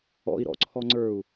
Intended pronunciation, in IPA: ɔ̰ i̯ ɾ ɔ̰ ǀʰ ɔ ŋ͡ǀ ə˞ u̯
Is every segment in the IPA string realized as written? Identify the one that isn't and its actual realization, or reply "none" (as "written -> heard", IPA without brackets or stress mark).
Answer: none